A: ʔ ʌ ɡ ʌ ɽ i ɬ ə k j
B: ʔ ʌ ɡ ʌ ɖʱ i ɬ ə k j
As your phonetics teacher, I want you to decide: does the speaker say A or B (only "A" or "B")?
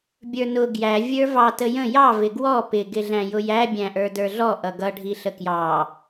B